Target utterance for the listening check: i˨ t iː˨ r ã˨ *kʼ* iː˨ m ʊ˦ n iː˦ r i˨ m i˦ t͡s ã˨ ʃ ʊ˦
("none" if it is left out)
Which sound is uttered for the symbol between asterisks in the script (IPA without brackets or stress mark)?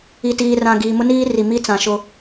ɡ